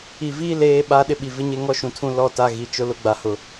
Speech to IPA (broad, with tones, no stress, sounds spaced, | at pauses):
i˨ v iː˦ l eː˦ ɓ a˦ ɗ ɪ˦ ɓ i˨ v ɪ˦ ɲ e˦ ŋ ɔ˦ ʃ ũ˨ tʰ ũ˦ l ɔ˦ t a˦ ɣ i˨ t͡ʃ ʊ˦ l ʊ˦ ɡ͡b a˨ h ʊ˨